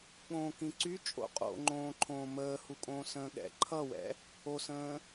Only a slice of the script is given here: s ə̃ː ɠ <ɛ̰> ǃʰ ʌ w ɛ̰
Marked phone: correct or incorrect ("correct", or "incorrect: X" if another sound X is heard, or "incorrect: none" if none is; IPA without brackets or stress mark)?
correct